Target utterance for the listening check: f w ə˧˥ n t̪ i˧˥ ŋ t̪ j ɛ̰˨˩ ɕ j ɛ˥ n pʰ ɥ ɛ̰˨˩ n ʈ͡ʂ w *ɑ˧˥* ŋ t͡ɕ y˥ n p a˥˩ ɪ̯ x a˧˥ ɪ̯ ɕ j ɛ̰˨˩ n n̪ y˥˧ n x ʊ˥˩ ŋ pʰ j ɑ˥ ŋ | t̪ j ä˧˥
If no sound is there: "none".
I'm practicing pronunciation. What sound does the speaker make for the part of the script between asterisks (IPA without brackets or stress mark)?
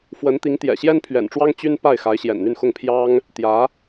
ɑ˥